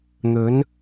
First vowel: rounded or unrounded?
rounded